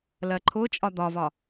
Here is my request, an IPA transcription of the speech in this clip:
lɜǃʰʊt͡ʃʼɒ d̪ɒvɒ

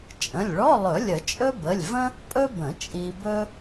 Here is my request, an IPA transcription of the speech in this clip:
t͡ʃʼə̃˩˧˩lʲɭɔ˧˥˧lˠɵ˨˩˦ lʲə˨˩˦t͡ʃʼɵ˥bə˩˧˩lʲvə̃˥ | pʼɵ˥bə̃˨˩˦ t͡ʃʼi˧bɵ˥

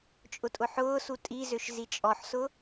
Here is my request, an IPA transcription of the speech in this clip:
t͡ʃʼʊtʼʊħʊːsu tʼizøʃ zit͡ʃʼɔħsʊ

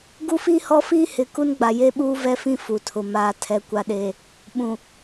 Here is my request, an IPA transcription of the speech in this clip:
ɡu˦fiː˦hɔ˦fiː˦ hɪ˨ ku˦nɡ͡ba˨je˦ɓuː˦ vɛ˦fĩ˦ fu˨tʰʊ˨ maː˨tʰɛ˨ kʷa˨ɗeː˨ | ɓũ˨

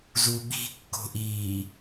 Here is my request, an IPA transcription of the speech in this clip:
zuɓi̤kːo̤ʔiː

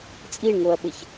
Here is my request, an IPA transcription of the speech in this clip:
t͡sʼiɳŋoɐ̯ɓɘç

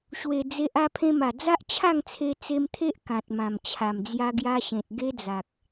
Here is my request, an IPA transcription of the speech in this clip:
ɕwe˨˩ d͡ze˨ʔ a˧pʰẽ˧ma˨˩ d͡za˦ʔt͡ɕʰa˥˧ŋt͡sʰe˧ t͡se˧mt̪ʰe˦ʔ kã˨t̚mã˨˩mt͡ɕʰa˨˩m d͡zja˧ɡja˧ɕẽ˨t̚ ɡe˦d͡za˨k̚

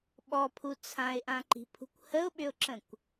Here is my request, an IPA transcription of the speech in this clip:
ɓɔpʰu t͡sʰãɪ̯ʔãǃi̤pʰṳkʷ həʊ̯ɓʏʊ̯ǁə̃kʷ

